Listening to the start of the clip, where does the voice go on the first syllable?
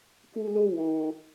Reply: high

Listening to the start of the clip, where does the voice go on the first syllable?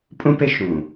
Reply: high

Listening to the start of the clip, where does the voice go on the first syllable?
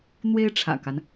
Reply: high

